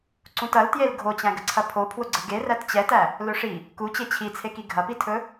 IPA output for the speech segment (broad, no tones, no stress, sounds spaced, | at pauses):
ǀ ũ t ɐ l t j e l ɡʱ o t͡ɕ æ̃ ɡ ə ǀʰ ɐ pʰ o pʰ w ʊ ɡ͡ǀ ə ɡ e r æ t t͡ɕ ɛ t æ | l ɵ ʂ i | k u t͡ɕ e t͡ɕʰ i t͡sʰ e k i ɡʱ ɐ p i tʰ ɵ